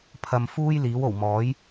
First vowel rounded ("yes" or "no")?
no